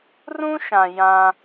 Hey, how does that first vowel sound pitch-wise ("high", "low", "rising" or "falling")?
high